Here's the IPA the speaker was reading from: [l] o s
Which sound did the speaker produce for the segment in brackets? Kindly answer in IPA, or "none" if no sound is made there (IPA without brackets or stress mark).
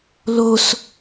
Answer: l